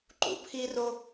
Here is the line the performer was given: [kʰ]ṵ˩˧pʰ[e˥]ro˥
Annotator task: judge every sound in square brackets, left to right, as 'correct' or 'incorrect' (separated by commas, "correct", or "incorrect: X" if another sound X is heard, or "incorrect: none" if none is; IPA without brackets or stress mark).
incorrect: ǃ, incorrect: i˥